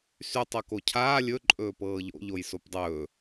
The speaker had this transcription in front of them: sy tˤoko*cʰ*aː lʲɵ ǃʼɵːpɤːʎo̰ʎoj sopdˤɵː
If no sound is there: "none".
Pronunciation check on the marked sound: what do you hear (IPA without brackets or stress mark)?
cʰ